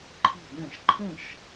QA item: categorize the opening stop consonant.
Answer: click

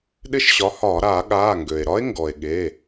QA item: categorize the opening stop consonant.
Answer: implosive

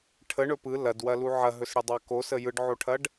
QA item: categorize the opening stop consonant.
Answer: aspirated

